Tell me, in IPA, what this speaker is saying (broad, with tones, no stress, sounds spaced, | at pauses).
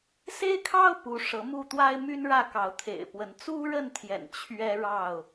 s e˦ ɪ̯ kʰ ɑ˦ ʊ̯ p u˨˦ ʂ ɤ˨˦ m u˥˨ t̪ w a˦ ɪ̯ m y˦ n ɻ ä˥˨ k ɑ˨˦ ʊ̯ t̪ʰ ḛ˨˩ ɪ̯ p w ə˨˦ n t͡s u˦ ɻ ə˥˨ n t̪ʰ j ɛ̰˨˩ n t͡ɕʰ ɥ ɛ˦ ɻ ɑ˥˨ ʊ̯